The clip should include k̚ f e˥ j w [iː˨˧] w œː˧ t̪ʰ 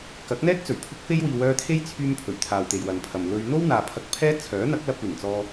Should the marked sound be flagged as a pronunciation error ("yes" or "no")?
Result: no